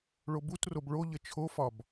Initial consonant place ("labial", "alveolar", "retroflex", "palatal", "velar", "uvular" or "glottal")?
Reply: retroflex